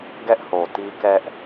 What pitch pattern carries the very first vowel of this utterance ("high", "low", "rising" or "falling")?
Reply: high